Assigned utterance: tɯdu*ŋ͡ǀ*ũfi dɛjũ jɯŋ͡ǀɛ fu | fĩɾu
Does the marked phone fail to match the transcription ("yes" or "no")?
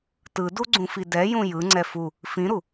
yes